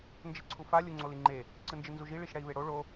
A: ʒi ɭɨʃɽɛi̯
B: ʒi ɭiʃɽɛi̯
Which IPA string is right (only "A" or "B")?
B